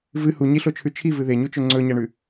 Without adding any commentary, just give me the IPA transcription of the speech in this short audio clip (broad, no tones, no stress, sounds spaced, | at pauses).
v ɨ h u ɲ i ɬ o t͡ʃʰ ʉ t͡ʃʰ i v ɨ ð e ɲ u t͡ʃ ɵ ŋ͡ǀ ɵ ɲ ɐ ɳ ʉ